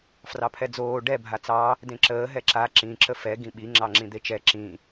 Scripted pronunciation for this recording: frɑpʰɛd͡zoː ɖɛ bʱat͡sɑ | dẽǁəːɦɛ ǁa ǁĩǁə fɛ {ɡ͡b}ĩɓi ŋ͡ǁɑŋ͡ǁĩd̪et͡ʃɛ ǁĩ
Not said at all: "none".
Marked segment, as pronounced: ɡ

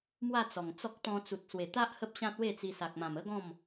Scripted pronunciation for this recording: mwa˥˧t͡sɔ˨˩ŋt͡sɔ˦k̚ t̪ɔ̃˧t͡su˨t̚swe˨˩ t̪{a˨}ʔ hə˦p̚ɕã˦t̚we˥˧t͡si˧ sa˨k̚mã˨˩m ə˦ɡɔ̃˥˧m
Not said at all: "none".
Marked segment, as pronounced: a˦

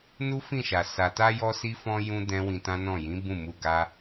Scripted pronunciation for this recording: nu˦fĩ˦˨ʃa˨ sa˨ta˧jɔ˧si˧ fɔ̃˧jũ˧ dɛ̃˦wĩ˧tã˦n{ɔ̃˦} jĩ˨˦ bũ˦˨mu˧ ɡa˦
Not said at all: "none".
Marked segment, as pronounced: ɔ̃˦˨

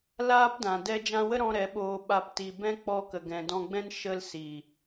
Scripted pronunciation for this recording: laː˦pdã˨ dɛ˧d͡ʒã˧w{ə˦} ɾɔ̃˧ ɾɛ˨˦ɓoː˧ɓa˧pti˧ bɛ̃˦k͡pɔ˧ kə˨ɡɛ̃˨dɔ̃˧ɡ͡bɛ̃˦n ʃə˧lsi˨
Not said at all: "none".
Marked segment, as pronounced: ə˦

